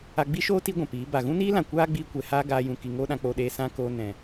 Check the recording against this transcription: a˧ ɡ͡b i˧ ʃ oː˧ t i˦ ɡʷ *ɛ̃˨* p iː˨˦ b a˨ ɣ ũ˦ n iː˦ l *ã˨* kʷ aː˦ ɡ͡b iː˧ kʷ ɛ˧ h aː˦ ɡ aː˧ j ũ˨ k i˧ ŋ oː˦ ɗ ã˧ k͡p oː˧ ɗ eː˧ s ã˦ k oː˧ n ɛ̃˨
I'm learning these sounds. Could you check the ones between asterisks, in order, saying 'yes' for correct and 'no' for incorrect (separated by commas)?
yes, yes